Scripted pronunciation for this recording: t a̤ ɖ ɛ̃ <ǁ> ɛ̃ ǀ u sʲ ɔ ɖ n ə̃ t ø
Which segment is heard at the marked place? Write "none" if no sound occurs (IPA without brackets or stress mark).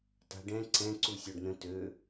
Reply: ǀ